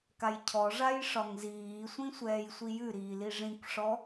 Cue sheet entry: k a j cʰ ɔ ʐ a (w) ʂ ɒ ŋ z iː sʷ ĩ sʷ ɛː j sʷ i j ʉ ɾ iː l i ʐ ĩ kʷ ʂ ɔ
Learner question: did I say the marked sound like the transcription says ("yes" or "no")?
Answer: no